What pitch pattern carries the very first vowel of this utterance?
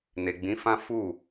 low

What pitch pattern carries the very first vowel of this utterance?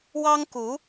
high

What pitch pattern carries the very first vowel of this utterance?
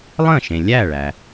falling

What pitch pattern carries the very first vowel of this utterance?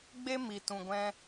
high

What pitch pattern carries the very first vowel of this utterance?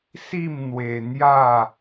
falling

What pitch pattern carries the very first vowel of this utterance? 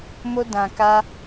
high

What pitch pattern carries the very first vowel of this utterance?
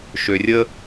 low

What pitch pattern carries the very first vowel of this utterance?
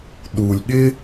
low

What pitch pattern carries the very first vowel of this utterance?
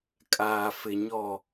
low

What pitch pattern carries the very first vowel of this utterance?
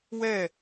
falling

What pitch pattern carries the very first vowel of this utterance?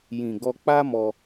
low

